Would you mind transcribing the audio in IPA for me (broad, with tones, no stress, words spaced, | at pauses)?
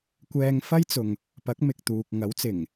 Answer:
kʷɛː˧ŋfɐ˥jt͡sʊ˨ŋ | pɐ˨˥k̚mɪ˨k̚t̪uː˨k̚ ŋɐ˨˥wt͡sɪ˨˩ŋ